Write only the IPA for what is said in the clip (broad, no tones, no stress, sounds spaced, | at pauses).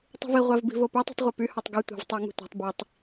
tˤ ṳ v i ʁʷ æ v b i̤ v o p ø tˤ ṳ tˤ ʁʷ e p y h ɑ tˤ ɡ u tʷ ɑ̤ v tˤ æ ŋ ṳ tʷ ɑ̤ tˤ b i tˤ